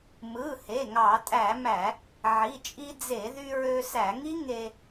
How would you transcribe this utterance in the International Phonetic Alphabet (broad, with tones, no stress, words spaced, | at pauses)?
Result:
mɯ˩˧˩he˩˧˩ ŋɑ˧˩˧tʼæ˧˩˧mæ˧˩˧ | ʕi˩˧˩t͡ʃʼi˧d͡ze˧˩˧ðy˧ ɹø˧sæ˧˩˧ŋi˦˥ ŋe˧